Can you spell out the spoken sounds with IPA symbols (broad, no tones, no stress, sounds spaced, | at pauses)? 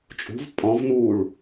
t͡ʃʼ ṳ v pʼ ɔ̃ v n uː ɭ